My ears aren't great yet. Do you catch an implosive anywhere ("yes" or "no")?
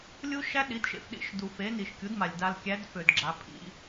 yes